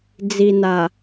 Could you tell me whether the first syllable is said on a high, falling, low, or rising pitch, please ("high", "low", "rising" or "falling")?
low